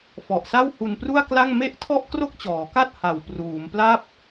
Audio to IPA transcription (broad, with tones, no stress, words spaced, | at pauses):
fɔ˨˩ʔsa˥˩whu˧npru˥˩a̯ kla˥˩ŋ me˥˩ʔ tʰɔ˥˩ʔkro˥˩k̚t͡ɕɔː˩˦ka˥˩t̚ ha˨˩wpruː˩˦mpla˥˩p̚